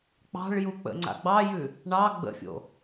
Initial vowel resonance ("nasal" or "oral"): oral